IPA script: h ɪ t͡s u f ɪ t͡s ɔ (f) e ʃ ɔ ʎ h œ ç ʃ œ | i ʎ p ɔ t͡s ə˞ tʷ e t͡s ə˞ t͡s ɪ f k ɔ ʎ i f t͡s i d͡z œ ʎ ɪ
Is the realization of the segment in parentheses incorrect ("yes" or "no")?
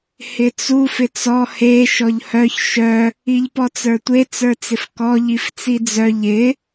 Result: yes